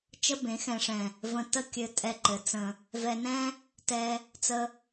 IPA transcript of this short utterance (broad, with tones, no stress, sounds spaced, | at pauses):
t͡ʃ ə˦ b ẽ˨˦ x ɛ̃˨ ʂ ɛ̃˨ | v ə̃˧ t ə˦ kʲ ɘ˧ tʼ ɛ˧ ǃ ɘ˨˦ t͡s ə̃˧ | v ɛ˧ n ɛ̃˦ | t ɛ˧ | t͡s ə˧